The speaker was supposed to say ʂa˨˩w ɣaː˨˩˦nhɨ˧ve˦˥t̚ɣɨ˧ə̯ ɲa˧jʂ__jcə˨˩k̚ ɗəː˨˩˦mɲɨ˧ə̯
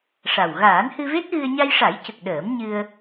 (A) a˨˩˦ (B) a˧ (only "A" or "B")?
A